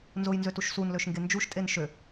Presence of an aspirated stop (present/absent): absent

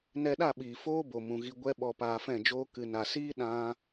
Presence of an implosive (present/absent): present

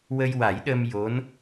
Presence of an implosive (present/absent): present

